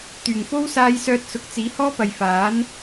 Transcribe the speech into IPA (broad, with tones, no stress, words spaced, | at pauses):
t̪yː˨˩ŋfo˥w saː˧jsœː˧t̚sʊ˨k̚ t͡siː˨˥hɔː˥pɐ˨j faː˨˥n